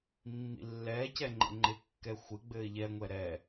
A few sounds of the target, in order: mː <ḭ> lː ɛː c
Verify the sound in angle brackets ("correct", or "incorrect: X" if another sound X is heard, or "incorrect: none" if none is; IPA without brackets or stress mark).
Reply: correct